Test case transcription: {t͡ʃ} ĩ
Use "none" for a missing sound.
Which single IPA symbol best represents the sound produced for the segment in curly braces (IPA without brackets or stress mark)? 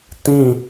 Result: t